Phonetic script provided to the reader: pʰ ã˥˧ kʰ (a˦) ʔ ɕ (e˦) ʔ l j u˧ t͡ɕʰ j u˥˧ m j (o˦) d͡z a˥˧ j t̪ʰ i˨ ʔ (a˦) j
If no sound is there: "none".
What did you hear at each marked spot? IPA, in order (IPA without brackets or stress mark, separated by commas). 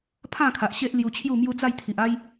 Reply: a˨, e˦, u˦, a˦